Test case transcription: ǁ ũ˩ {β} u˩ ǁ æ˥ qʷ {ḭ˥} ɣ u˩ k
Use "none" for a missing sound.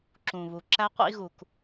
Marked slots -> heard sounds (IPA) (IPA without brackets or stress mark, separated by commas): β, ḭ˥